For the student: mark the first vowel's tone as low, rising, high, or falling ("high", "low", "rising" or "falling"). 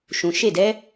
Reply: low